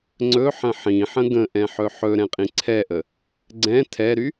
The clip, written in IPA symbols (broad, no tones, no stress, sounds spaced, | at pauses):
ŋ͡ǀ ɵ ħ ə̃ ħ ĩ ħ ə̃ ɡ ə̃ ʔ ɛ̃ ħ ɵ ħ ɵ ɾ ɛ̃ qʼ ĩ ǀʰ ɛ ʔ ə | ɡ͡ǀ ɛ̃ tʰ ɛ ɾ y